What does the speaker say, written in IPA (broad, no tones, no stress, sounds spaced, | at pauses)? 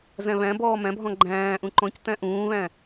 z æ̃ β æ̃ b ɔː m æ̃ bʱ ɔ̃ ɡ͡ǃ æ̃ː ʔ ũ ǃ ɔ̃ c t æ̃ ʔ ũː β æ̃